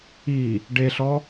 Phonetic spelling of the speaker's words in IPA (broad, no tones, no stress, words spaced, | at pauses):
i | ɖeɬɔ